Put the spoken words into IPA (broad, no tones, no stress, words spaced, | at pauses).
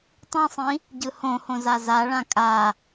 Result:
tˤĩsˤĩ | ɟɯhõhõ zazaɭã kʼa